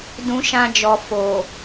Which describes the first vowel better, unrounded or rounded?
rounded